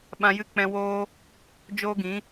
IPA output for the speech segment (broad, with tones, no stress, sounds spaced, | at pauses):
ɓ ã˧ j ɨ˦˨ k͡p ɛ̃˧ w oː˦ | d͡ʒ oː˦ ɡ ĩ˨˦